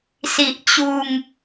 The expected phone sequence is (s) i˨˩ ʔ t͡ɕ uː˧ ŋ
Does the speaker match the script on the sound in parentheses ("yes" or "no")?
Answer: yes